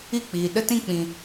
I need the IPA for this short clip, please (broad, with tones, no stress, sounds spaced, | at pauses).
i˦˨ k͡p iː˨ ɗ ə˦ t ĩ˦˨ k͡p ĩ˨